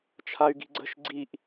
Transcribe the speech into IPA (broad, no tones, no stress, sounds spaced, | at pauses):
t͡ʃʰ a y̯ ɡ i̤ ɡ͡ǀ ə̤ ʃ ɡ͡ǀ i ʔ